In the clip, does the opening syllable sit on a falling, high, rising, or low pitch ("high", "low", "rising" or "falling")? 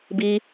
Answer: high